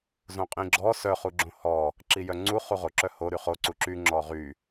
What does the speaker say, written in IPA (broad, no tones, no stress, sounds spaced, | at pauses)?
z õ qʼ ĩ ɡ͡ǁ ɔ s œ χ u ɡ͡ǁ õ h ɔ | ǁ i j œ ŋ͡ǀ u χ u ʁ o ǁ œ h o ɾ y χ o ǀ u ǁ y ŋ͡ǁ ɔ ʁ y